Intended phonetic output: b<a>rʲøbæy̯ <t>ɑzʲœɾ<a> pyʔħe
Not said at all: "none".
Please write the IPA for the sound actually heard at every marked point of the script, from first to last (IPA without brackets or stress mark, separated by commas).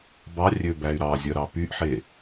ɑ, ɾ, ɑ